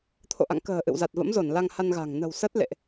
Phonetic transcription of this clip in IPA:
t̪ʰ o̰˧˨ ʔ a̰˧˨ ŋ k ə̤ː˨˩ ʔ ɨ̰˧˨ w z a˨˩ t̚ v ə̰˧˥ m z o˧˩ n l a˧ ŋ h a˧ n ɣ a̤˨˩ ŋ n ə̤˨˩ w s ə˦˥ t̚ l ḛ˧˨ ʔ

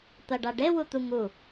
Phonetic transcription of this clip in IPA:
t̪ ɐ ɖ a ɖ e w u t̪ u ŋ u

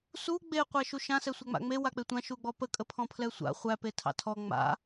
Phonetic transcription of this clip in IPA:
s u ɡ͡b e qʷ æ ʃ u ʃ ã s ɛ sʷ æ ŋ͡m a̰ ŋ͡m e w a k͡p e tʷ ã ʃ u ɡ͡b ɔ p ə kʼ ə pʰ ɔ̃ pʰ l ɛ sʷ a̰ χʷ æ p e tʰ ɑ̰ tʰ ɔ ŋ͡m a̰

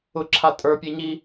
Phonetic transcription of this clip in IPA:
ʊ ǁʰ a tʼ ə˞ pʲ e ɲ i

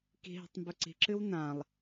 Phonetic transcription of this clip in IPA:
k i̤ ɦ i̤ tˤ m b ɵ ǀ i̤ ǁ ɨ w n ã lˠ

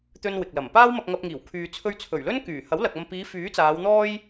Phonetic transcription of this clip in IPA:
t̪ ɵ˥ n w ɪ˨ k̚ l ɐ˨˩ m p aː˥ w m ɐ˧ k̚ ŋ ɐ˧ p̚ ŋ iː˨˩ w kʰ yː˧ t͡sʰ ɵ˥ ɥ t͡sʰ ɵ˨˩ ɥ l ɵ˥ n k yː˨˩ h ɐ˨˥ w l ɐ˨ k̚ ɐ˧ m p iː˨˧ f yː˨˥ t͡s aː˨˧ w n̪ ɔː˥ j

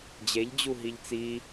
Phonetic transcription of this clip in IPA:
d͡ʑ e ʎ d͡ʑ u ɦ i ʎ t͡s i

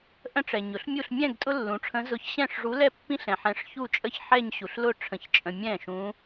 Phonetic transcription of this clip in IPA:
ʔ ə̃˥˧ ʈ͡ʂ ɛ˨ ɲ ʊ˩˥ ɬ mʲ u˥˧ ɬ mʲ ɛ̃˥˧ ɡ tʼ ʊ˥ lː ũ˩˥ ʈ͡ʂʰ ə̃˧˥ z ʊ˧˥ ç ɕ ɛ̃˥˩ ʂ ʐ u˧˥ l ɛ˥˧ pː ĩ˥ ɬ ɛ̃˨ ħ ɛ̃˧˥ ʂ ç u˥˧ t͡ʃʼ ə˥ ç ħ ɛ˥˧ ɲ ɕ u˨ ɬ l ʊ˥˧ ʈ͡ʂʰ ə̃˨ ç t͡ʃʼ ə̃˨ mʲ ɛ̃˥˩ ʃ ũ˧˥

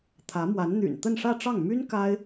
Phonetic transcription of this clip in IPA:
t̪ʰ ä˧˥ m w a˧˥ n n̪ y̰˨˩ n t̪ ə˥˧ n ʂ ä˥˧ ʈ͡ʂ ɑ˥˩ ŋ m y˥ n k a˥ ɪ̯

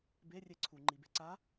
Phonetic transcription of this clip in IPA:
b e rʲ e ǀʰ u ŋ͡ǃ i b e ǀ a

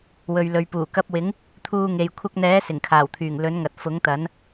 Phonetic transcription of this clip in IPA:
w ɵ˨ ɥ l ɵ˨ ɥ p uː˨˩ k ɐ˧ p̚ w ɪ˨˥ ŋ | t̪ʰ uː˧ ŋ e˨ j kʷʰ ɐ˧ k̚ n̪ ɛː˨˥ s ɪ˨˩ ŋ kʰ aː˨˩ w t̪ʰ yː˨˩ ŋ l ɵ˨˥ n ŋ ɐ˨ t̚ f ʊ˨˥ ŋ t̪ ɐ˨˥ n

